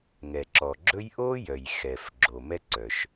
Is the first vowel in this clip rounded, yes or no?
no